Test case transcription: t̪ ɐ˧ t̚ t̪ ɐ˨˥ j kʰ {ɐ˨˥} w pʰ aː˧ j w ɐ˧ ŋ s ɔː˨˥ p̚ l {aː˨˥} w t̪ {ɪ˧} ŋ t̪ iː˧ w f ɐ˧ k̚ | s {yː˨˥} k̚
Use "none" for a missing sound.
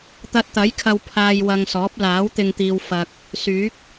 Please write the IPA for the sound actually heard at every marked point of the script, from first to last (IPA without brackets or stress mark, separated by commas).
ɐ˧, aː˨˥, ɪ˧, yː˨˥